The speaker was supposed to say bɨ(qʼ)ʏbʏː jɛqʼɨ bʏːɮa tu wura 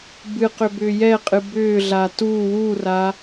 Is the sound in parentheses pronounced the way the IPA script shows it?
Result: no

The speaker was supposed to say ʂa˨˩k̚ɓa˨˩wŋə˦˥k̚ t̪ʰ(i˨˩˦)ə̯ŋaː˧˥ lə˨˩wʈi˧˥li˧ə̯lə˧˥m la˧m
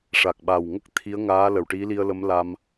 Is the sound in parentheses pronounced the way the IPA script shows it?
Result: no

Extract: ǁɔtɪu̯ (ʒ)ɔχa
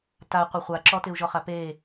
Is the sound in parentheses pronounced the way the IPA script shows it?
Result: yes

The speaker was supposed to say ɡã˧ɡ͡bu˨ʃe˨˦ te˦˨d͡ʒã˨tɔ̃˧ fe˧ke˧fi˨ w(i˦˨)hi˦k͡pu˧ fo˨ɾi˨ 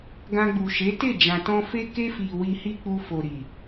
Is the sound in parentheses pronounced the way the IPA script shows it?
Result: no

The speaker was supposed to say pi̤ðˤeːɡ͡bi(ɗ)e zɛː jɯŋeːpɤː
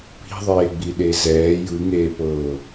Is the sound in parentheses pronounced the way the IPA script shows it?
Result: yes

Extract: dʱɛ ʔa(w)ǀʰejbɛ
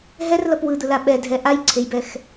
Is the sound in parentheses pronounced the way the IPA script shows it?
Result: no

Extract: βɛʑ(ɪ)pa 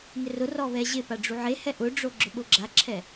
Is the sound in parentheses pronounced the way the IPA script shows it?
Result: yes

